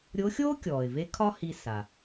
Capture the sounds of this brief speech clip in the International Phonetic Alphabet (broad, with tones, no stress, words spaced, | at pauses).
ɾʲo˧˥xʲoː˥ kʲɔː˩ɪ̯ve˧˥ kʰɒ˥hi˧sa˩